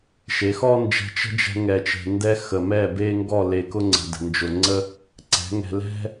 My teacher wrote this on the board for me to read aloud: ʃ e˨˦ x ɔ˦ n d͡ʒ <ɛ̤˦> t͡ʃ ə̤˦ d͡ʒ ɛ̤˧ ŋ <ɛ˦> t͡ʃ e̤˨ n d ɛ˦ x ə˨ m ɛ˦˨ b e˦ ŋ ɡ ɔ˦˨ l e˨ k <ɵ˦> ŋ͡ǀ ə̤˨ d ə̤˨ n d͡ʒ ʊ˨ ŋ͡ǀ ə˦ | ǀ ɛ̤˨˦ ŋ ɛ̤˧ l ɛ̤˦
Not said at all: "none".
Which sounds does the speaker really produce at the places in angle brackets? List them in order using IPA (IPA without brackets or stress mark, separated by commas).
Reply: ɛ̤˧, ɛ˨, ʊ˦